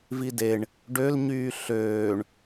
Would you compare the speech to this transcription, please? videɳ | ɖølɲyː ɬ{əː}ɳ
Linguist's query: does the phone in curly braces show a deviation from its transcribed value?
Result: yes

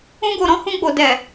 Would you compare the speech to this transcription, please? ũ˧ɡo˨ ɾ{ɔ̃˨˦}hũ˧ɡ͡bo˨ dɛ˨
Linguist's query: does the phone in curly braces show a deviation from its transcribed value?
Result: no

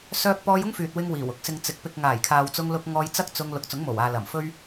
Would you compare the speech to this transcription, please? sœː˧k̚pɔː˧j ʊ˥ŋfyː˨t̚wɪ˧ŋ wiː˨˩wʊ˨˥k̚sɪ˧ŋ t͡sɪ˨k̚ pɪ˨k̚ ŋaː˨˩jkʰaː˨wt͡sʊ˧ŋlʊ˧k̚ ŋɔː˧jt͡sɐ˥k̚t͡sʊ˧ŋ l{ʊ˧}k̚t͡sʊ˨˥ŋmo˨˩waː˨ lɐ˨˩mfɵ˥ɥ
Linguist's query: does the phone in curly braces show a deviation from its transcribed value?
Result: yes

